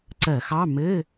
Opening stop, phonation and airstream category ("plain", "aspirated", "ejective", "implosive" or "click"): click